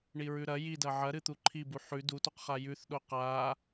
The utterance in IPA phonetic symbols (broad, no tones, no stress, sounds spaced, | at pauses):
ɳ i ɹ ʉ ɾ ɐ j i d ɐ ʕ ɐ ɾ ɨ t̪ u ǃʰ i b u ħ ʉ d u t o q χ a j ʉ θ ɗ o q a